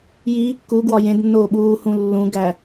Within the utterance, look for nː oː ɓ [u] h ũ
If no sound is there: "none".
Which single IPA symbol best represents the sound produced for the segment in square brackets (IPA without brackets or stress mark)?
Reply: uː